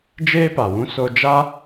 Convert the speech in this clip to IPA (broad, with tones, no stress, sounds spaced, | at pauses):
d͡ʒ eː˦ p a˨ w ũ˦ s o˧ d͡ʒ a˦